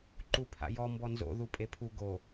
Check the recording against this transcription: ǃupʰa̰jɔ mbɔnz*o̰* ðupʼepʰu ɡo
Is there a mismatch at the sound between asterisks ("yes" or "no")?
no